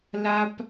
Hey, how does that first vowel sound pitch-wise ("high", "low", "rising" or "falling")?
high